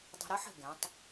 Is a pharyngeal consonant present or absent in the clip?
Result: present